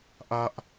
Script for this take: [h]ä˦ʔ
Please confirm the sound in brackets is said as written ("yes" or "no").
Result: no